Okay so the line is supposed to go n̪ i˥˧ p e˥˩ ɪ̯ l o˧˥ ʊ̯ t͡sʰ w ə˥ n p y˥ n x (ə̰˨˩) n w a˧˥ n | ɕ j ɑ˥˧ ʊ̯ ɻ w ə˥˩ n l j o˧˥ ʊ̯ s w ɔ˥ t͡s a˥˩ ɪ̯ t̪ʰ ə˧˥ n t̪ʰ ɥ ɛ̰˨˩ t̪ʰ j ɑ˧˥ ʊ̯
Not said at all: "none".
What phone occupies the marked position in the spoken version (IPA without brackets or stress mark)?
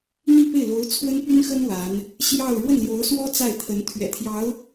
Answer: ə˥